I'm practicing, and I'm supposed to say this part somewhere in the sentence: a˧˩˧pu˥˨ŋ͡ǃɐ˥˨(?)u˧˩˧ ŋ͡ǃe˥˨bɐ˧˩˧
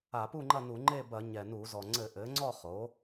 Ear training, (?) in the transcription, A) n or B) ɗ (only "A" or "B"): A